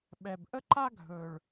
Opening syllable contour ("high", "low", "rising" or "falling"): low